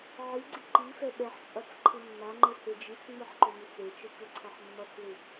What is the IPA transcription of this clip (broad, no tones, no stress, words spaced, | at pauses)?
ʕiɡ͡ǀi ǃi fɛɓɛħt͡ʃʼʌt͡s ǃʰɯmːaŋ͡ǃɯ hed͡ʒit͡sŋ͡mɯħ ǃomit͡set͡ʃɯ kɯǀʰʌħmːʌt͡slɯ